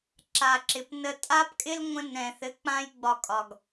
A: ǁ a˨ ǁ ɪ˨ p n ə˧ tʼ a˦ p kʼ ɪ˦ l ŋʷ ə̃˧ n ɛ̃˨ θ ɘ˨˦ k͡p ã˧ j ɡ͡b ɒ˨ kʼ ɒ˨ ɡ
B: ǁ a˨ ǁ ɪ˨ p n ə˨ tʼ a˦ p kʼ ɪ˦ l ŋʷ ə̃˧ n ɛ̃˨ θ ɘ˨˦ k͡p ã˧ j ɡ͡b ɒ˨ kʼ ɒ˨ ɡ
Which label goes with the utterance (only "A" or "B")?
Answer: A